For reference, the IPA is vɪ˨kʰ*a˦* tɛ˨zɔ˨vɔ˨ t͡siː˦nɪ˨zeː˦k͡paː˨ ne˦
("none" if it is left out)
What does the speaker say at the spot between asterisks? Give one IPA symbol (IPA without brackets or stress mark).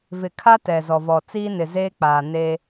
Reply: a˦